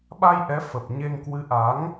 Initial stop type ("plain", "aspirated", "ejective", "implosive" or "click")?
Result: implosive